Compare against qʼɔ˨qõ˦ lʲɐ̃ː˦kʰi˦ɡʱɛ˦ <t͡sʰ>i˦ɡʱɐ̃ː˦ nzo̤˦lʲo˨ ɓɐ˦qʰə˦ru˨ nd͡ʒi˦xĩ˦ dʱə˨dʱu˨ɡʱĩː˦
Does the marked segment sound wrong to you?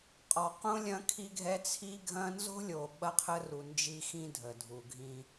no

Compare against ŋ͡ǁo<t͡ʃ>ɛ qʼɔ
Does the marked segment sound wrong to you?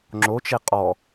no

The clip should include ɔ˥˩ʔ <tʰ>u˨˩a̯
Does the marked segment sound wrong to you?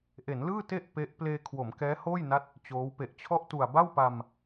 yes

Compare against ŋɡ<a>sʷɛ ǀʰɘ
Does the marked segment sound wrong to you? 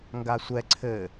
no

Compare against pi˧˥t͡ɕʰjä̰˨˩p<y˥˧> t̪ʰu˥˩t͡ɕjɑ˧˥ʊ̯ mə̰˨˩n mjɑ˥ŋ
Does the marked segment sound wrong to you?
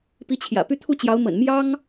no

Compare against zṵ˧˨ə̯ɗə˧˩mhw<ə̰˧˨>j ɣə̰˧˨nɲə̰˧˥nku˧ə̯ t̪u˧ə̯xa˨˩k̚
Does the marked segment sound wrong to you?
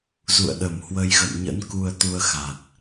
yes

